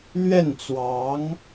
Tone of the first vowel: falling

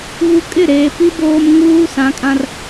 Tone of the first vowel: high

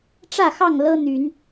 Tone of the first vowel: falling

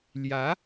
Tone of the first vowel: rising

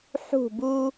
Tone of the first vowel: falling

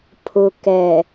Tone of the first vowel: low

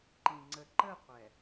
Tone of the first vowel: low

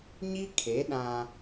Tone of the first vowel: high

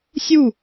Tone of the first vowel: falling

